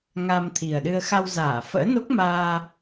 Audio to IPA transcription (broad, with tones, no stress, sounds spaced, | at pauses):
ŋ a˧ m t̪ʰ i˨˩ ə̯ ɗ ɨ˧ ə̯ x a˧ w z aː˧˩ f ə̰ː˧˥ n o˦˥ k̚ m aː˧